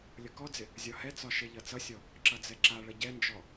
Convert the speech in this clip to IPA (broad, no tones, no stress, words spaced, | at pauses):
lʲʌkɔd͡zɪ | zʲɒhɛt͡sɒ ʃeʎʌt͡sʌsʲɔ | ǁʌd͡zɛǁaɭʌ ɟɛnd͡ʒɔ